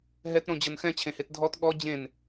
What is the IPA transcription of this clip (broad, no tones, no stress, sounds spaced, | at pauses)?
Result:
ɦ ɛ t ɾ õ d͡ʑ ɤ n x ɛ̃ t͡ɕʰ ẽ h e t dʱ ɔ t ɠ ɔ d͡ʑ ẽ n